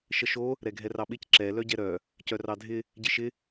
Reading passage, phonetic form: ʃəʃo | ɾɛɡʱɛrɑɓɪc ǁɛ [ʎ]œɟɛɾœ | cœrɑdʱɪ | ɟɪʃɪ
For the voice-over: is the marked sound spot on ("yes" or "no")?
no